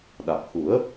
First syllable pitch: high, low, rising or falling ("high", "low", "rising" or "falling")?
low